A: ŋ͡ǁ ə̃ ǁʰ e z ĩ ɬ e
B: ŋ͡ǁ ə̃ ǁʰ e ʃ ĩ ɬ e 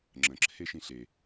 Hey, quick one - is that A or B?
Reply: B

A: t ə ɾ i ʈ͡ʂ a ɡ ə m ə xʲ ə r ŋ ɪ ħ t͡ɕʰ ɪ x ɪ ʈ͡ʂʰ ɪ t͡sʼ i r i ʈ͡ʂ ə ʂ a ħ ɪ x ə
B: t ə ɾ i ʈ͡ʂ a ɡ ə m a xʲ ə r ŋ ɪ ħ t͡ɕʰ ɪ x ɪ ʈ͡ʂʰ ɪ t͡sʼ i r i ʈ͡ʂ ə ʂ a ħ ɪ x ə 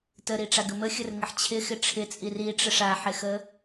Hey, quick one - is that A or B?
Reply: A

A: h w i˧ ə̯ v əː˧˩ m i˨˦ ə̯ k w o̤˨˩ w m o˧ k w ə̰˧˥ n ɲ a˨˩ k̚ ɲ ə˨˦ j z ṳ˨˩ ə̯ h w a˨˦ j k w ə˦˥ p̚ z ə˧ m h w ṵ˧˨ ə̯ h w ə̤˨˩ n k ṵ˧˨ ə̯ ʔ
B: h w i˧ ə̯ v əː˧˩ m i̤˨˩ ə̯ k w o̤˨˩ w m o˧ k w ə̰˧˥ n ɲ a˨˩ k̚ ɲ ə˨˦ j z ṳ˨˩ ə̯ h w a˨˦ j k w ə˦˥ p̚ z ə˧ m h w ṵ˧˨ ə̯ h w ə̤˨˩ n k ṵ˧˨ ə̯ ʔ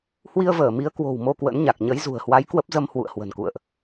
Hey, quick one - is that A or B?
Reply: A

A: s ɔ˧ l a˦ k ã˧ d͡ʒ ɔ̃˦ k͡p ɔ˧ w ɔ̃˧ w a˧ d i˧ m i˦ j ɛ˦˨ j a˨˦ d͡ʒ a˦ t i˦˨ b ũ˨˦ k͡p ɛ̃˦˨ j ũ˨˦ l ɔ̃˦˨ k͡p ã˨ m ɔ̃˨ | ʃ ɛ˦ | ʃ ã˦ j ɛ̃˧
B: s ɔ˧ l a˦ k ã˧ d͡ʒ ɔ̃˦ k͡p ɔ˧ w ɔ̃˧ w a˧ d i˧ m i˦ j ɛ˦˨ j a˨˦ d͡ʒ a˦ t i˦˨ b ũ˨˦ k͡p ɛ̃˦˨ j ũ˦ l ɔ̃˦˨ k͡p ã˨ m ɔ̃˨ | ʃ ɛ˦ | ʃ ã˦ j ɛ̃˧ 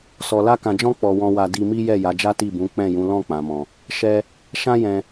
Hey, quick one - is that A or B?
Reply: A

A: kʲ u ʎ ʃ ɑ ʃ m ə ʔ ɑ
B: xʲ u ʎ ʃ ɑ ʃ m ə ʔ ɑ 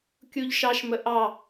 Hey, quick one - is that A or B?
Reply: A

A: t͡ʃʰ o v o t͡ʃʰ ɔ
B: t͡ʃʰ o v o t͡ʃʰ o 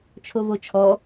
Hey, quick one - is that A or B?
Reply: A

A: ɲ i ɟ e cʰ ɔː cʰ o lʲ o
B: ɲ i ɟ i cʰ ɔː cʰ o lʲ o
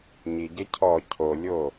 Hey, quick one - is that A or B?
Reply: A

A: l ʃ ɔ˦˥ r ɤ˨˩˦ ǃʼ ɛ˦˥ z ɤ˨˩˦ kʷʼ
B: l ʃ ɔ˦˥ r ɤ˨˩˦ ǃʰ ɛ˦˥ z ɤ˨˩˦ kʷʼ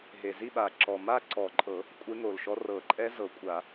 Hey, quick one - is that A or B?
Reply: A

